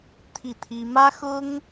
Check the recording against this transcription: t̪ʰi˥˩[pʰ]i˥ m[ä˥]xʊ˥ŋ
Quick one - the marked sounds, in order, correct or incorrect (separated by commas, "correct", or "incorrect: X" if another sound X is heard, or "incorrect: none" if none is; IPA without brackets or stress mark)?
incorrect: t̪ʰ, correct